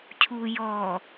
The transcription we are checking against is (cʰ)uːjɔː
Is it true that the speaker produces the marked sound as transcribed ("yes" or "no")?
yes